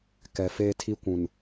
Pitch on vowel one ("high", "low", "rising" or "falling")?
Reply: low